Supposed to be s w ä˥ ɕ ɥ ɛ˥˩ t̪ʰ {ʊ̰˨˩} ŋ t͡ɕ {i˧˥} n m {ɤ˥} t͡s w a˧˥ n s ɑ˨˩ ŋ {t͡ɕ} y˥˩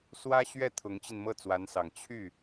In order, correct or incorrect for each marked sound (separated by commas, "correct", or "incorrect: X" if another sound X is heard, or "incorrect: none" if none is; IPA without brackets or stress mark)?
incorrect: ʊ˧˥, incorrect: i˧, incorrect: ɤ˥˩, incorrect: t͡ɕʰ